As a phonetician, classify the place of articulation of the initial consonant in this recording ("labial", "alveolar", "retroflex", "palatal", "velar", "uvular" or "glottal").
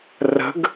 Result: alveolar